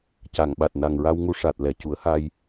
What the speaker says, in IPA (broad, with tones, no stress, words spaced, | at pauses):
ca˨˩˨ŋɓa˨˩t̚ na˨˩ŋɹa˧wŋu˧ ʂa˨˩t̚ lɛ˨˩˨cu˨˩˦ə̯ha˧j